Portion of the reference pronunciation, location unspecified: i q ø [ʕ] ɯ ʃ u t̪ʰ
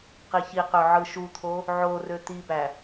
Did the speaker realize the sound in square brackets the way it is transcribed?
yes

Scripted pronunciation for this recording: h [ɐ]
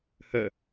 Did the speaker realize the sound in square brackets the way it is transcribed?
no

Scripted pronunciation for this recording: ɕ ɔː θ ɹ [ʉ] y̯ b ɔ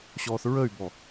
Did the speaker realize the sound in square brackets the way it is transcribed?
no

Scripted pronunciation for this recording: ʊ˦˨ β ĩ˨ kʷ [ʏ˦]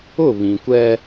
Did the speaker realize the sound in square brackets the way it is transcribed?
no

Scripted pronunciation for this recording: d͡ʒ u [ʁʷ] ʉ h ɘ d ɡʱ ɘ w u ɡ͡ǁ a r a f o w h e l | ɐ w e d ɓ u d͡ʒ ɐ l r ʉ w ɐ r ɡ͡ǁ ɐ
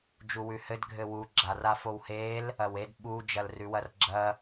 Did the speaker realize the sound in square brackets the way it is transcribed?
no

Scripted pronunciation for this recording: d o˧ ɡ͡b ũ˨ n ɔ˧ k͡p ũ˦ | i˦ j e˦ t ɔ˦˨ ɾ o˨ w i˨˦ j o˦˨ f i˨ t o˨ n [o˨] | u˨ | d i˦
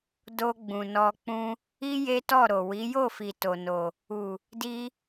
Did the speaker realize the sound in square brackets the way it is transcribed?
yes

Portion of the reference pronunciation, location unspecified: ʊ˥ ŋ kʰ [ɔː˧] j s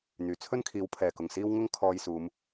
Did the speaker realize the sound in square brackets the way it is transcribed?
yes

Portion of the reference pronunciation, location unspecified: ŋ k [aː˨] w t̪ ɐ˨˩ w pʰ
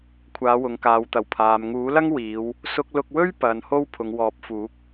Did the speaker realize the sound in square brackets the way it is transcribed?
yes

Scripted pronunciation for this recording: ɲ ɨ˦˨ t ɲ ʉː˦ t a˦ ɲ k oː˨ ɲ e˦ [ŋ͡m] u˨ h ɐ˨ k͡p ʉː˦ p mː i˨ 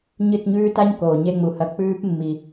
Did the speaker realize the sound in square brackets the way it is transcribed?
yes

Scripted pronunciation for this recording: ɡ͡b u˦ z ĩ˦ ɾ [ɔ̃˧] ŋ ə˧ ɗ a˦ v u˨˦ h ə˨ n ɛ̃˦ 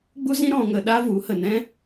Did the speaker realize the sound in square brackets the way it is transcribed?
yes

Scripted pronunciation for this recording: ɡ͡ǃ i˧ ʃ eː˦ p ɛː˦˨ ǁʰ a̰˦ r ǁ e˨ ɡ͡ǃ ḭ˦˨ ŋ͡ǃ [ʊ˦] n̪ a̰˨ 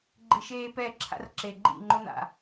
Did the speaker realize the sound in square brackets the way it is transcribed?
yes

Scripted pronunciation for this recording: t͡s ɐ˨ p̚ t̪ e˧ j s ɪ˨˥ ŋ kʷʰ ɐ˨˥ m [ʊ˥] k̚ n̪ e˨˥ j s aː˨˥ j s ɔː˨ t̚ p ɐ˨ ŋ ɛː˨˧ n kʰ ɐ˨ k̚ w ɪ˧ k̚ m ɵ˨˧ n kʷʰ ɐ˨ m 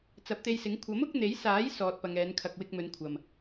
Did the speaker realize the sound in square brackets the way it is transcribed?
no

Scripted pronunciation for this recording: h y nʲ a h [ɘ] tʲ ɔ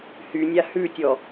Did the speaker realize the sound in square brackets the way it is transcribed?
no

